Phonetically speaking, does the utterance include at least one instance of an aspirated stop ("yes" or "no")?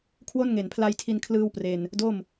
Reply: yes